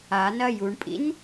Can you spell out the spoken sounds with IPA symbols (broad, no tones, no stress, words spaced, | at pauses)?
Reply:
anɐ juɳpʼḭn